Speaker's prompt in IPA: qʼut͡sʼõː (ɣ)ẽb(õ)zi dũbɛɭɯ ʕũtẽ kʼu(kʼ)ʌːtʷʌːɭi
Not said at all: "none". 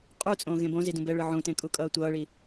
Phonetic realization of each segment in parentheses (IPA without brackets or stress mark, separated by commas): ɣ, õ, kʼ